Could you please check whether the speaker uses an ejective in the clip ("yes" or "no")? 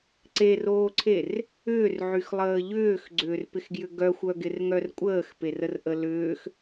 yes